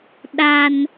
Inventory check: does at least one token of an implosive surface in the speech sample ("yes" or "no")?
yes